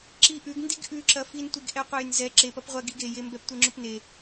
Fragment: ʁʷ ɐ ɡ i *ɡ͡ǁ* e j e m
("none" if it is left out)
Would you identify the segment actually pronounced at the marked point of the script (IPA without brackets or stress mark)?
ɡ